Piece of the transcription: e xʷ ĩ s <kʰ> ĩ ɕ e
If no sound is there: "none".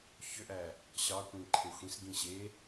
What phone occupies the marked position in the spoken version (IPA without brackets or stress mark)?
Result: ɡ